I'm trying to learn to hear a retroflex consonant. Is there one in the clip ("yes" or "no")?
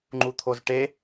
yes